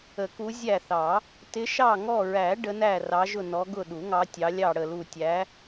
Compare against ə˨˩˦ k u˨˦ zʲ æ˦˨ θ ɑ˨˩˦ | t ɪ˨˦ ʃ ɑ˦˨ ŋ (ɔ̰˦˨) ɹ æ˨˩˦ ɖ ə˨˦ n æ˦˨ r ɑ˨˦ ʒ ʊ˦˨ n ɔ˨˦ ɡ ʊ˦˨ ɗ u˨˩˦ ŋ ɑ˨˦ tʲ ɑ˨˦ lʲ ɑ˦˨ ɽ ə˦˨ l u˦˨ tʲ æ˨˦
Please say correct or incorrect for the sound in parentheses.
incorrect